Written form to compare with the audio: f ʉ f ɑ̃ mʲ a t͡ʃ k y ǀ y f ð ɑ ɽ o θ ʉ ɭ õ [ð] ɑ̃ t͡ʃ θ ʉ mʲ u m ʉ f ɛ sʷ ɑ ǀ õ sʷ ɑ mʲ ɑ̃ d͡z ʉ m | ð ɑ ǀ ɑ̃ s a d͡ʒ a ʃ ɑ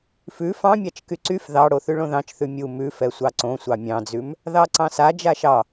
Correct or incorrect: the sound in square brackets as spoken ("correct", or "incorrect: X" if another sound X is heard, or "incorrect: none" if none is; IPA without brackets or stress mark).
correct